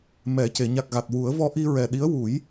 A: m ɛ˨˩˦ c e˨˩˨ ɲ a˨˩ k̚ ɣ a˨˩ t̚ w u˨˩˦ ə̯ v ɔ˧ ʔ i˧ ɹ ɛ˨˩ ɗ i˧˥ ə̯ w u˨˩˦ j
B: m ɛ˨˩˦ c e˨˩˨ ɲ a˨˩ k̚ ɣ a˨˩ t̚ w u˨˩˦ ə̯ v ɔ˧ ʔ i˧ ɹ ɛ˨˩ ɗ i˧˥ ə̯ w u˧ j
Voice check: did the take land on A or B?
A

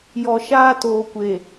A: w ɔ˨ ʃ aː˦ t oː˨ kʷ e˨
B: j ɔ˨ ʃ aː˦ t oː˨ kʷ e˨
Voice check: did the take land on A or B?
B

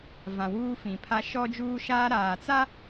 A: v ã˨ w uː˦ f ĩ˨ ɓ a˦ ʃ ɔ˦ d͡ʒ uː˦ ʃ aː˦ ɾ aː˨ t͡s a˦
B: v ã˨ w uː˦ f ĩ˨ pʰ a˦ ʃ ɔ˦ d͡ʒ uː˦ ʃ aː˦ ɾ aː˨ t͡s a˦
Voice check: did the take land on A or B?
B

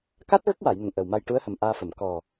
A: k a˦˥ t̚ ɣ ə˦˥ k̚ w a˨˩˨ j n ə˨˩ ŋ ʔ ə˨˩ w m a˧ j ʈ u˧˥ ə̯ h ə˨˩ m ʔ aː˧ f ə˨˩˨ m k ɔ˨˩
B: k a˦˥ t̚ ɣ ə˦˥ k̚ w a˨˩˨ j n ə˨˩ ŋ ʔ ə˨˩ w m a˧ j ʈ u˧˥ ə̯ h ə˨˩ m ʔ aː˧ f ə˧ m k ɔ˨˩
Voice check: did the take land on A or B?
A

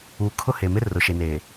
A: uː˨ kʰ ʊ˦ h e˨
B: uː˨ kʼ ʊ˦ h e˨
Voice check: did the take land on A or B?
A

